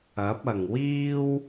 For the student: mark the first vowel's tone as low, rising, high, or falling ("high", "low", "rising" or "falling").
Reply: rising